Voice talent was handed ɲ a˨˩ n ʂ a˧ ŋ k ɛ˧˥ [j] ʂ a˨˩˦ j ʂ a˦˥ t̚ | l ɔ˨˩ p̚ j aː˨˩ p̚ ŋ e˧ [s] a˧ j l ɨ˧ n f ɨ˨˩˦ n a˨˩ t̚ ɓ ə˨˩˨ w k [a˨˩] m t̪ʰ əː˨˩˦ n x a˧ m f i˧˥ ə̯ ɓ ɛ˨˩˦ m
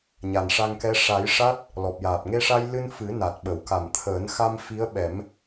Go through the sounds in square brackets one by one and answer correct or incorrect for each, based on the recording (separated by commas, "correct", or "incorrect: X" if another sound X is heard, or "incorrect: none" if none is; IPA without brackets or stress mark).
incorrect: none, incorrect: ʂ, correct